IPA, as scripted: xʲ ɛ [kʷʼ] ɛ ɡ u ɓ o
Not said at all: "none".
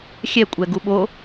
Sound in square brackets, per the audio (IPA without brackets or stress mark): kʷʼ